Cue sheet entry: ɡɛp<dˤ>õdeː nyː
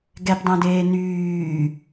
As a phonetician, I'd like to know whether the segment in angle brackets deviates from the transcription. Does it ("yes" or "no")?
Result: no